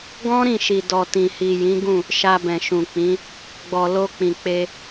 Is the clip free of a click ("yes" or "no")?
yes